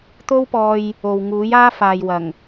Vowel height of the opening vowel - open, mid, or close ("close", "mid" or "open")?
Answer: mid